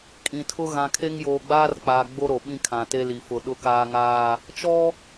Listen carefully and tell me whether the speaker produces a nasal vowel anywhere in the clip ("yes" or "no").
yes